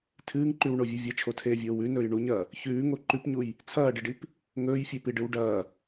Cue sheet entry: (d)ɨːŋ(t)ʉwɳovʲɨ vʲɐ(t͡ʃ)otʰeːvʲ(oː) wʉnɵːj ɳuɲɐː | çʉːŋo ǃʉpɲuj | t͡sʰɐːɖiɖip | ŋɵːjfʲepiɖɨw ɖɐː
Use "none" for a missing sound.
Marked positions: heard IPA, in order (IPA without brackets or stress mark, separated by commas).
tʰ, ǃ, t͡ʃʰ, oː